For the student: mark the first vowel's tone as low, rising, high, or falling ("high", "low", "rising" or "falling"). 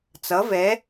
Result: rising